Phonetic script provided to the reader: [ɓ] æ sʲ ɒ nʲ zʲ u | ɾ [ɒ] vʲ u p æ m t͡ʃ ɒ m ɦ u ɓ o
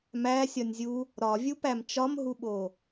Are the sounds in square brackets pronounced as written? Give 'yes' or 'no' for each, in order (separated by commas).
no, yes